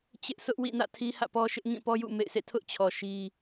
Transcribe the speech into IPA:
t͡ɕ ɪ˦ ʔ s ʊ˦ ʔ w ḭ˦˨ n ä̰˦˨ tʰ i˦ h ä̰˦˨ p ɔ˦ ʃ ɪ˦ ʔ ŋ ĩ˦˨ p ɔ˦ j ṵ˦˨ m ḛ˦˨ ɪ̯ s ḛ˦˨ tʰ ʊ˦ ʔ t͡ɕʰ ɔ˨ ʃ i˦

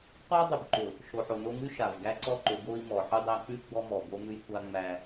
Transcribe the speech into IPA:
qʷ æ˦ dˤ ʉ˨ b ǃ ʊ˨ | ʃ o˨ ħ o˨ n o˦ ŋ ʉ˦ ʃ a˨ v ɡ æ˦ ǀ ɔ˦ ǃ ʊ˨˦ ɡ o˦ i̯ m ɔ˨ ħ ʉ˦ dˤ æ˦ k͡p ʉ˦ ɡ͡b ɔ˦ m ɔ˨ b o˦ m ʉ˦ j kʷ a˦ ŋ͡m æ˦

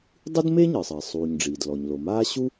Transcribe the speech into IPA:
dˤ ɨ˥ d m e˥ ɲ ɨ˩ sˤ ɘ˩ e̯ sˤ uː˩ ɲ ɖ͡ʐ iː˩ d l ɔ˩ ɲ l o˩ m aː˥ ɕ u˥

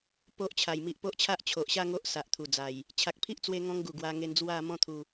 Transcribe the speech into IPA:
p o˦ ʔ t͡ɕʰ a˨˩ j m i˨ ʔ p o˦ ʔ t͡ɕʰ a˦ ʔ t͡ɕʰ o˨ ʔ ɕ a˥˧ ŋ o˦ ʔ s a˨ ʔ t̪ʰ u˨˩ d͡z a˨˩ j | t͡ɕʰ a˨ k̚ pʰ i˦ ʔ t͡s w e˧ ŋ ɔ̃˦ ŋ ɡ u˨˩ ɡ w a˧ ŋ e˧ n d͡z w a˥˧ m ɔ̃˥˧ t̪ʰ u˧

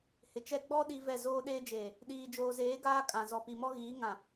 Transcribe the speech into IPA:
h ɪ˨ t͡ʃ ɛ˦ ɡ͡b ɔ˦ ɗ i˦ v ɛ˦˨ z oː˦ ɗ eː˦ d͡ʒ eː˨ | ɗ iː˨ d͡ʒ oː˨ z eː˨˦ ɡ aː˦ kʼ ã˨ z ɔ˨ p i˨ m ɔ˦ ɣ iː˨˦ ŋ ã˨

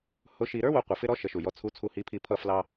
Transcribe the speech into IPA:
h ʊ˧˥ ʃ i˧ ɾ ə˞˥ w ʊ˩˧ qʷ i˩ f ɪ˥ ɾ ɔ˧˥ ʃ ə˩˧ ʃ u˩ j ɔ˧ t͡sʰ u˧˥ t͡sʰ u˧ h i˧˥ pʰ i˧ pʰ ʌ˧ f l ɑ˧

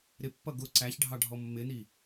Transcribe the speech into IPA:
ɾ ɪ pː ʌ ɡ ʊ ǀ æ ç ɖʱ ɑ ɖʱ ɔ mː ɪ n i

